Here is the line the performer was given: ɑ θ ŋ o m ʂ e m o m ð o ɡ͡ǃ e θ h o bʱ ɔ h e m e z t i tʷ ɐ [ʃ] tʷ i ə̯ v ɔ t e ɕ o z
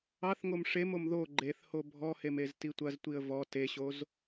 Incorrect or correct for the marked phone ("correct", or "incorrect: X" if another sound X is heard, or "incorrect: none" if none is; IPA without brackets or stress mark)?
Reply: incorrect: z